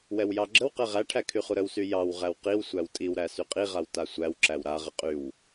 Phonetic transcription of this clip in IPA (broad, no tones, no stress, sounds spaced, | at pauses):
w ɛ w j ɑ ɡ͡ǁ ə w q ɛ ʁ æ ʈʰ æ kʰ y χ u ɾ ə w s y j ɑ w ʁ æ w q i w sʷ æ w tʼ i w ɾ æ s y qʼ i ʁ a w t a sʷ æ w ǁ æ w ɾ a ʁ ə qʼ y w